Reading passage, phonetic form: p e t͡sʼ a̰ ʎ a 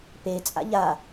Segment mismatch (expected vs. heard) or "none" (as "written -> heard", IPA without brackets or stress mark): none